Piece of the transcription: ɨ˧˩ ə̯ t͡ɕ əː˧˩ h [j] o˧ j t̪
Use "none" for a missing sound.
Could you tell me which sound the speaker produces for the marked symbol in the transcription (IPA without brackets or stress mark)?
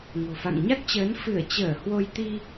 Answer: w